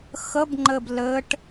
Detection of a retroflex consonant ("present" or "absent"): present